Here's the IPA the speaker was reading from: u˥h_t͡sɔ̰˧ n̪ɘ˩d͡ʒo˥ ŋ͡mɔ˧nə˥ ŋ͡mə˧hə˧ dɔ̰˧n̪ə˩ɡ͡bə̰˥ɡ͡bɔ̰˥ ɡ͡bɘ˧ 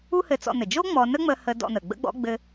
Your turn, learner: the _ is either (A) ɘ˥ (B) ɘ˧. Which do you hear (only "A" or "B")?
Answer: B